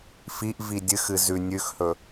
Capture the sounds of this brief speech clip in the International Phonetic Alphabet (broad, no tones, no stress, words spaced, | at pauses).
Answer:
fiʔ vidʲɨxɨ zʉ nʲʉxhɵ